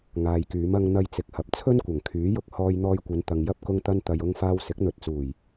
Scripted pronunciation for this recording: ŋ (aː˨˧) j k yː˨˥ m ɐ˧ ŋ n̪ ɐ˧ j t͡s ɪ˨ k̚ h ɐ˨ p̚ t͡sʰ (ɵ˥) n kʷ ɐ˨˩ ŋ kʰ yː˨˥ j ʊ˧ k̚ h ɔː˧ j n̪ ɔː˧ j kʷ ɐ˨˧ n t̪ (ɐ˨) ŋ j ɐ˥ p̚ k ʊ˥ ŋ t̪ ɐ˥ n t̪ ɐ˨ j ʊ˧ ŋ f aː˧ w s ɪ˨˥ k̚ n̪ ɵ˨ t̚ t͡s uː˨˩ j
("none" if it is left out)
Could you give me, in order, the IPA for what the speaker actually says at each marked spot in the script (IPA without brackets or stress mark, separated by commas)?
aː˨, ɵ˥, ɐ˨